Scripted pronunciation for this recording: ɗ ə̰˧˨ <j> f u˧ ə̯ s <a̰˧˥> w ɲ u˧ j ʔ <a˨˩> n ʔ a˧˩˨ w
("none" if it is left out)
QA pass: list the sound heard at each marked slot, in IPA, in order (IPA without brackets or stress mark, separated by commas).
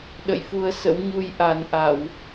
j, ə̰˧˥, a˨˩